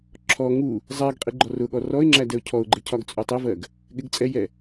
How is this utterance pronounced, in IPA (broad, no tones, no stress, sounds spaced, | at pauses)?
ǁʰ ɔ ŋ u | zˤ ɛ ɡ qʼ i ɡ͡ǃ ɔ r ʊ ɠ ɔ r ɔ ɪ̯ ŋ͡ǁ æ d ɛ ʊ̯ cʰ ɔ ʊ̯ ɡ͡ǃ ɪ cʰ ɒ ɡ t͡sʼ u tˤ ɪ v ɜ ɡ | ɠ ɪ ɡ t͡sʼ ɛ j ɛ